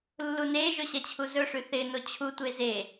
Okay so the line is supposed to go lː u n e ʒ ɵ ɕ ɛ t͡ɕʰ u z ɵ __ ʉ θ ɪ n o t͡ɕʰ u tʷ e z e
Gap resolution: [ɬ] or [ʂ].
ʂ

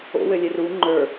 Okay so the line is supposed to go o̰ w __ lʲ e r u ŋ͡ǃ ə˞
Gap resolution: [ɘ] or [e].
ɘ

